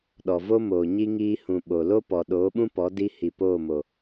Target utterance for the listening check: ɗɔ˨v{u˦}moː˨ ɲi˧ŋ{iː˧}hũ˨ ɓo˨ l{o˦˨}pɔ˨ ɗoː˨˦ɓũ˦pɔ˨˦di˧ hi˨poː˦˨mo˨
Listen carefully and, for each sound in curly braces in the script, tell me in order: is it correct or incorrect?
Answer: incorrect, correct, incorrect

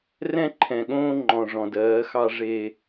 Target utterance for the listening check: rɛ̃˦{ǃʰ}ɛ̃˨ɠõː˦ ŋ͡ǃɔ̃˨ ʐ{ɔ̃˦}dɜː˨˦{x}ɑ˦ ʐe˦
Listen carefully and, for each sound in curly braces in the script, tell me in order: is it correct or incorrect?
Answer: correct, incorrect, correct

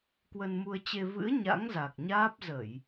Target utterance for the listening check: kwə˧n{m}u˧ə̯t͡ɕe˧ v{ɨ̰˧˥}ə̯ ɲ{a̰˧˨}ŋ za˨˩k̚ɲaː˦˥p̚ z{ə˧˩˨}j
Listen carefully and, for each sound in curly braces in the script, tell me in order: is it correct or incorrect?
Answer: correct, correct, incorrect, correct

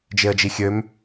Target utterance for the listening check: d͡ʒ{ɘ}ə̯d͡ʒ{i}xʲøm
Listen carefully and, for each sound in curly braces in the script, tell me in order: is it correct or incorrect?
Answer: incorrect, correct

